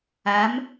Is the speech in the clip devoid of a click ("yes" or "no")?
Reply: yes